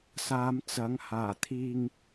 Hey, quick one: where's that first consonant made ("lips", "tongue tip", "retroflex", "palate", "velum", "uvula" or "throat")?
tongue tip